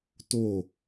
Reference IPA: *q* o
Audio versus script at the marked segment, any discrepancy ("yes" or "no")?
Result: yes